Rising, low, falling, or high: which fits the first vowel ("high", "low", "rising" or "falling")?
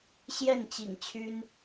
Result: falling